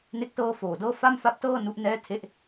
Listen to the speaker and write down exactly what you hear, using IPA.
n e˥˩ k̚ t ɤː˥˩ f oː˨˩ d ɤː˥˩ f a˥˩ m f a˦˥ p̚ t ɤː˥˩ n u˦˥ ʔ n ɛː˥˩ tʰ e˥˩ ʔ

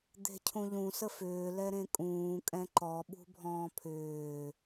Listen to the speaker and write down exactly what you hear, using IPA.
d̪ e̤ cʰ ũ ʎ ũ s ə f ʏː l ɛ ɾ ẽ kʼ ũː kʼ ɛ̃ ǃ ɔ ɓ ṳ bʱ ɔ̃ː pʰ ʏː

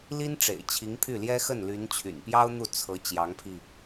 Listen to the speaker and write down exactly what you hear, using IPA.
l i˥ n ʈ͡ʂ ḛ˨˩ ɪ̯ t͡ɕʰ i˧˥ ŋ pʰ y˥˩ l j ɛ˥ x ə˥˩ n l y˧˥ n t͡ɕʰ y̰˨˩ n p j ɑ˥ ʊ̯ n̪ u˥˩ t͡sʰ ɤ˧˥ t͡ɕ j ɑ˧˥ ŋ pʰ i˧

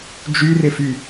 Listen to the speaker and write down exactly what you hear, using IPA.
d͡ʒ y r ɪ f y

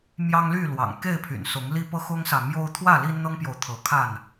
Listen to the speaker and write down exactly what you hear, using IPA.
m j ɑ˦ ŋ l y˥˨ l w ɑ̰˨˩ ŋ k e˥˨ ɪ̯ pʰ y̰˨˩ n s ʊ˨˦ ŋ l i˦ p ɤ˦ x ʊ˦ ŋ s ä˨ m j o˦ ʊ̯ t̪ʰ w ä˥˨ l i˦ n n̪ ɤ˦ ŋ p j o˨ ʊ̯ t̪ʰ ɤ˨˦ kʰ a˥˨ n

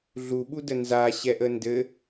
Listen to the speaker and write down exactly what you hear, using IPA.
ɮ u ɓ u d ə n z a ɕ ɛ ʔ ə n d ɘ

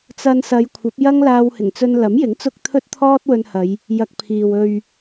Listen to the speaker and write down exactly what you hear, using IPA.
t͡s ɐ˧ n s ɐ˨˧ j kʷʰ ɐ˨˥ p̚ j ɐ˥ ŋ l aː˧ w h ɪ˨˩ ŋ t͡s ɵ˧ n l ɐ˨˥ m j ɪ˨˥ ŋ t͡s ʊ˧ k̚ t̪ʰ ɵ˥ t̚ t̪ʰ ɔː˥ t̚ w ɵ˧ n h ɐ˨˧ j | j ɐ˧ k̚ pʰ iː˨ w ɵ˨ ɥ

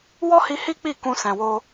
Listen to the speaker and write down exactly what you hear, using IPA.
w ɔ˦ h i˧ h i˦ k͡p i˦˨ k ũ˧ s ɛ̃˨ w o˧

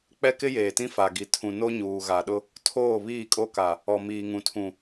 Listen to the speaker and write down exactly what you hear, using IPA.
k͡p ɛ˦ k ɪ˦ j eː˨ t ĩ˦ f a˨ ɡ i˨ tʰ ũ˨ n o˦ ɲ uː˨ ɣ a˨ ɗ ʊ˦ | tʰ oː˦˨ β iː˦˨ kʼ o˦ k a˨ | ɔ˨ m iː˨ ŋ ũ˨ tʰ ũ˨

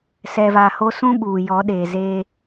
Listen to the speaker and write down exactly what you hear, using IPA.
s ɛ˨ v aː˨ h o˦ s ũ˦ ɓ uː˨ j ɔ˨˦ ɗ eː˨ z eː˦

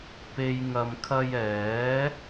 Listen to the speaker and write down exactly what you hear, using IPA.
p e˨ j ŋ ɐ˨ m kʰ ɐ˧ j ɛː˨˥

